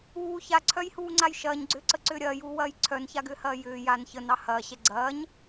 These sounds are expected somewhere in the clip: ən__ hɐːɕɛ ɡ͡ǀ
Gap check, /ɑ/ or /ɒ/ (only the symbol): ɑ